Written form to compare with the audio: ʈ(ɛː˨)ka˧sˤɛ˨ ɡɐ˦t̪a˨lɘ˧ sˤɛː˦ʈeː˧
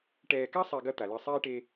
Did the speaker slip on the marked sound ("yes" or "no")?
no